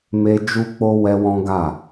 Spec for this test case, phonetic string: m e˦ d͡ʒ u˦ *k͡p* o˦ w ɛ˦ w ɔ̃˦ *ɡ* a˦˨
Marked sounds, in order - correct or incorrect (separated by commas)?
correct, correct